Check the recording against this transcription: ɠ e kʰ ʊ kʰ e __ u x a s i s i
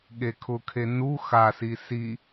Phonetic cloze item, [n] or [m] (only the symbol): n